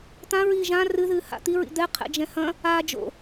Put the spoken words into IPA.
t̪ ã ɹ iː ʒ ã r ɨ ð ɨː h a̰ t̪ i ɹ ḭ d̪ ɛ qʰ ɛ̰ d͡ʒ ɛ̃ h ɐ̃ | a d͡ʒ o̰

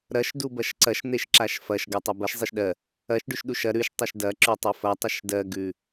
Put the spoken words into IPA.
ɾ ɐ ʃ d u b ɐ ʃ ǀ ɐ ʃ n̪ e ʃ ǁ a ʃ f ɐ ʃ ɡ ɜ tˤ ɜ b ɐ ʃ zˤ e ʃ ɗ ɜ | ɐ ʃ ɖ ʉ ʃ ɗ u ʃ ɐ ɾ ʉ ʃ tˤ ɐ ʃ d ɐ ǁ ʉ tˤ e f ɐ tˤ ɐ ʃ d ɜ ɡ ʉ

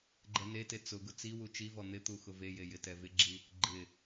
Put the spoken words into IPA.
ɡ͡ǃ ɛ n e t e t͡s ʊ ɡ ʊ t͡s i w u t͡ʃ i v ɔ n̪ ɪ t̪ u x ʊ v e j e j ɪ t ɛ v ɪ ɡ͡ǁ i | ɡ͡ǃ ɪ

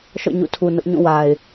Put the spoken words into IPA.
ʃ ɔ̰˦˨ ɲ ṵ˦˨ tʰ u˨ n ʊ˦ ʔ ɲ ũ˦˨ w a˨ ɪ̯

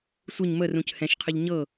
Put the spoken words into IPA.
sʷ ɨ ɲ m ə r ũ c h ɛ̃ ʃ qʰ ɨ ʎ ɲ ɤ

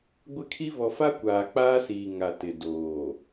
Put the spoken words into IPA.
ɡʷ ɪ˦ kʰ i˦ β ɔ˨ f a˦ kʷ aː˨ k͡p aː˦ s iː˨ ŋ a˨ t ɪ˨ d oː˨

